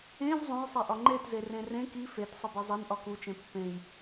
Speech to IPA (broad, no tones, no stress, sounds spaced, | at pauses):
ẽ v zˤ õ j sˤ e ʔ ɒ ŋ͡ǃ e t z e r ẽ r ẽ k i f e t sˤ e b e zˤ e n ʔ ɒ k u t͡ʃ ẽ pː ẽ j